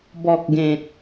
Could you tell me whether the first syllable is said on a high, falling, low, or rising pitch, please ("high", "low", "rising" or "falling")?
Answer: low